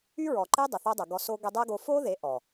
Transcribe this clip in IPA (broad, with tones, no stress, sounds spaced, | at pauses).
y˦ ɹ ɔ˨ ǃ e˦ dˤ ə˨ θ o˦ dˤ ə˨ ɡ ɔ˧ s o˦ ɡ ɛ˦ dˤ ɛ˦ ɡ o˧ f o˦ ð e˨˦ ʔ ɔ˨